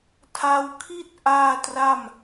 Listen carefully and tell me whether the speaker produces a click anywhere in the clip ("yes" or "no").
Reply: no